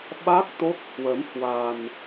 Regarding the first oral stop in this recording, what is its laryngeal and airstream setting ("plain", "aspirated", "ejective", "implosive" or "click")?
implosive